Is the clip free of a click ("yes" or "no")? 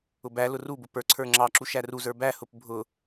no